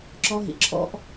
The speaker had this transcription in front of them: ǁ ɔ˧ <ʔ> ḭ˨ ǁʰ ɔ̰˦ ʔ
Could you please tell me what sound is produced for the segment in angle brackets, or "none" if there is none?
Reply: ɦ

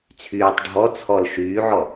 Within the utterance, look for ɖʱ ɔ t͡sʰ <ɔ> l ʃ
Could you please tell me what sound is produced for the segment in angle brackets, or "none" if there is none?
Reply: ɔ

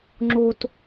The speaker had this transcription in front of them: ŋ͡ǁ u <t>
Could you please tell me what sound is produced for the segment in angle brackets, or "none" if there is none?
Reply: t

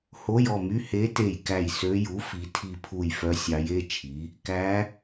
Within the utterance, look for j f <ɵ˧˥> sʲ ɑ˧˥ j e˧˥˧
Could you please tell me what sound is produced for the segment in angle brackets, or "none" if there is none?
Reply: œ˧˥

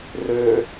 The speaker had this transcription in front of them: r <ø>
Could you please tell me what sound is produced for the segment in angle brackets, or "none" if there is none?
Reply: ø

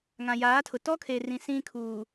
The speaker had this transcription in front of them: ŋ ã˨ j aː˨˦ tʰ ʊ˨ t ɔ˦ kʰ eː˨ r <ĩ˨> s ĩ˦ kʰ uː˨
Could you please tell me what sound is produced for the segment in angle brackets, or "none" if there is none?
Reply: ĩ˨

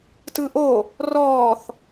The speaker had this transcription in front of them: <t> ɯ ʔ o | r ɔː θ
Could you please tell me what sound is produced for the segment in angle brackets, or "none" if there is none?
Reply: t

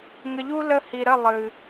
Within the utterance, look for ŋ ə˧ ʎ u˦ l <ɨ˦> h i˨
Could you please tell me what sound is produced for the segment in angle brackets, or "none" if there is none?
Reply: ə˦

